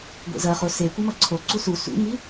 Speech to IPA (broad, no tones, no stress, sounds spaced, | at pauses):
ɡʷ ḛ z ɐ χ o s e kʷ a m ɐ ǀʰ o ǀ u s u s ṵ ŋ i